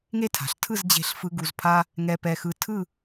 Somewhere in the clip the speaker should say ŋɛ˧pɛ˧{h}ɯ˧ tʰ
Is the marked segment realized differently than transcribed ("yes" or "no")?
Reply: yes